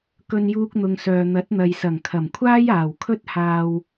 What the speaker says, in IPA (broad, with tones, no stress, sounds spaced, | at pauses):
k ɵ˧ n j uː˧ k̚ n̪ ʊ˨ ŋ s œː˨ n̪ ɐ˨˥ t̚ n̪ ɐ˨ j s ɐ˨˩ ŋ kʰ ɐ˨˩ m kʷʰ aː˥ j aː˨˩ w kʰ ɵ˥ t̚ h aː˧ w